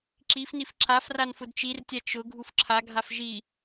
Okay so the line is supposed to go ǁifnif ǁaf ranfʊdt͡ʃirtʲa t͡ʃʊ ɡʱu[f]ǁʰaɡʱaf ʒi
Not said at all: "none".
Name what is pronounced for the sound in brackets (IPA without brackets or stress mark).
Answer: f